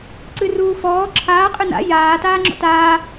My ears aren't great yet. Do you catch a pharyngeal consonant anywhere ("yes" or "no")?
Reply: no